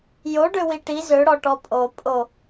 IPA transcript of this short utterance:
jo ɖøwiʈi zøɽɔʈɔ pʼo pʼo

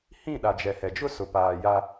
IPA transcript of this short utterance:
hĩ˦˨ɗa˨ d͡ʒɛ˨hɛ˨d͡ʒʊ˦ sʊ˨paː˨ ja˦

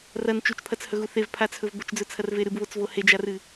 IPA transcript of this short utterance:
rɐn t͡ʃut͡ʃpʰɐt͡shɵɣu θevpʰat͡sʰɵv bɵt͡ʃd͡zɵt͡sʰɐrve ɾɨbβot͡svo hed͡ʒarɨ

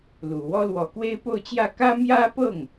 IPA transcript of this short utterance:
lu˨˩wɔ˥ lwɔ˨˩kwe˥ɪ̯po˥˧ʊ̯t͡ɕjä˥˩ kä˥mjä˥pɤ˥˩ŋ

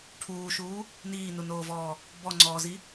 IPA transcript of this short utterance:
ʈʰuːʃuː | niːnunoːvɔː | bɔŋ͡ǀɔːzi

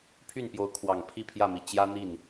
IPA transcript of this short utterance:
pʰy˥˩npjo˧˥ʊ̯kʰwɑ˨˩ŋ pʰi˥˧pʰjä˥˩mi˨˩ t͡ɕjä˥n̪i˥˩n

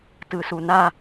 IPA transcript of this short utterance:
tɯsuna

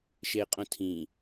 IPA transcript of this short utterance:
ʃeqʼõtʰĩ

